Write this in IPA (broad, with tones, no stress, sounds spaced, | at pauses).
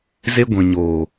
z e˧ ɡʷ ĩ˨ ɲ oː˨